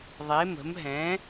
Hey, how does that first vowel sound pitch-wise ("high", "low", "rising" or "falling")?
rising